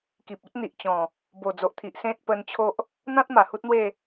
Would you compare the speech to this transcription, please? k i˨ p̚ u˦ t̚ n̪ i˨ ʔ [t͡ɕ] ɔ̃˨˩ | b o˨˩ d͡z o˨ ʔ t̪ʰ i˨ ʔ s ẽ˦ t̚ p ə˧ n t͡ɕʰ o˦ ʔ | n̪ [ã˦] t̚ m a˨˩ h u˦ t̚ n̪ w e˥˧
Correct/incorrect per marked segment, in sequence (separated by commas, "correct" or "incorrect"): correct, correct